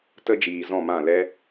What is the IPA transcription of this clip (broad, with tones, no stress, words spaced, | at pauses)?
tə˧d͡ʒiː˨ zɔ̃˦˨mã˦˨ lɛ˦